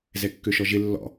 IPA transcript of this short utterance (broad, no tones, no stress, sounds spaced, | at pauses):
z ɛ kː ø ʃ ɔ ʒ ɪ lː ɔ̰